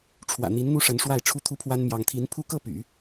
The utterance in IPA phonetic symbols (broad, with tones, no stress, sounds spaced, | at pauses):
ʈ͡ʂʰ w ä̰˨˩ n̪ i˧˥ n n̪ u˥ ʂ ə˧˥ n ʂ w a˥˩ ɪ̯ ʈ͡ʂʰ u˥ t̪ʰ u˥ pʰ w a˥ n m j ɑ˧˥ ŋ t̪ʰ i˧˥ n pʰ u˥˧ k ɤ˥˩ p y̰˨˩˦